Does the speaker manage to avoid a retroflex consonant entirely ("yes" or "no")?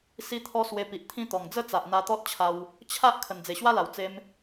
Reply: yes